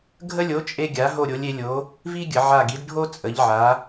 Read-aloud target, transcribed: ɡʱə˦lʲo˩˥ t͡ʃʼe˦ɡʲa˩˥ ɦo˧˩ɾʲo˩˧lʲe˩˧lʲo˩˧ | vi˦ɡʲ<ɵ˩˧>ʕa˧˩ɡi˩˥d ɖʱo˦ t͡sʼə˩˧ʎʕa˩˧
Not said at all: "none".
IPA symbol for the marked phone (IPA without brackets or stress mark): ə˩˧